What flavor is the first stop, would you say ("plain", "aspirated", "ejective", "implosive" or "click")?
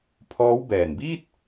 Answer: aspirated